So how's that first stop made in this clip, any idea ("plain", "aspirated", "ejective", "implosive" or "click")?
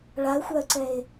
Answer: click